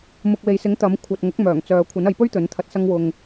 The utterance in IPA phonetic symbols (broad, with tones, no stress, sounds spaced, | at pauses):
m ʊ˨ k̚ w e˨ j s ɪ˨˥ ŋ t̪ ɐ˨˥ m kʷʰ ɐ˨ t̚ ŋ ʊ˨˥ k̚ m œː˨˩ ŋ t͡s œː˨ kʷʰ ɐ˨˥ n ɐ˨˧ j p ɵ˥ ɥ t̪ ɵ˨˥ n t̪ʰ ɐ˧ t̚ s ɐ˥ ŋ w ʊ˧ ŋ